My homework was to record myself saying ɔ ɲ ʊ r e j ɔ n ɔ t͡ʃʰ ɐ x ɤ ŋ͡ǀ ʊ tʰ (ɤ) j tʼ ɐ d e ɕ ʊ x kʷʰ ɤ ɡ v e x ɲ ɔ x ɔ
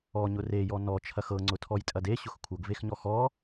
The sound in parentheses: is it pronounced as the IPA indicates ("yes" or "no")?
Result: no